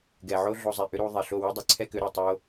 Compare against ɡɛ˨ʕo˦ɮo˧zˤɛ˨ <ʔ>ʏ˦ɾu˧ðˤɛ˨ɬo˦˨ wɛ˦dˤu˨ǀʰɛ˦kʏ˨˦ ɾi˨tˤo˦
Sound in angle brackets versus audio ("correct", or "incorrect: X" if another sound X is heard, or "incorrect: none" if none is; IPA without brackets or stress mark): correct